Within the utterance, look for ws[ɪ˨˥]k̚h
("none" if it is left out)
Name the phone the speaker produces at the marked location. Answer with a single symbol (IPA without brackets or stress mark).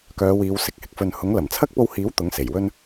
ɪ˨˥